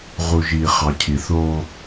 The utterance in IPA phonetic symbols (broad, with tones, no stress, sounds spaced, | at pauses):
ʁ u˨ ʒ iː˨ χ ɑ˨ cʰ i˨ θ oː˦